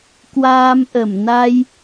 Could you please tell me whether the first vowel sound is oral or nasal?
oral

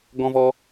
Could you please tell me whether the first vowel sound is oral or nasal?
nasal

